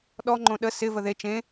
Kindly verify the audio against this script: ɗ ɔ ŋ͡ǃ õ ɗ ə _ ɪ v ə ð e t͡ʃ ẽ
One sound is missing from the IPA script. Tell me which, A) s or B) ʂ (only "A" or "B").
A